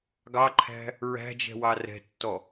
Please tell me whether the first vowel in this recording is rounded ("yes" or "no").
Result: no